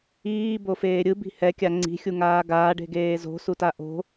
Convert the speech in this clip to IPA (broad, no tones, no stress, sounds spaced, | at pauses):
iː b o f eː ɾʲ ɯ b i̤ h ɛ kʲ a ŋ͡ǀ i̤ xʲ u ŋ aː ɡ aː ɖ e̤ ɡ eː z o̤ s u t a ʔ o̤